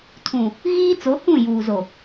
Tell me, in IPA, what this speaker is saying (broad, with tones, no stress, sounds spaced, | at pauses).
tʰ ũ˨ | ɣ iː˦ t͡s o˨˦ h ũ˦˨ j uː˨ z o˨